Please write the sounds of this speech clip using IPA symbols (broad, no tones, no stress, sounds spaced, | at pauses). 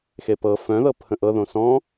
x e p ɤ f œ̃ ð ɤ pʰ ə̃ ʔ ɤ ð õ s ɔ̃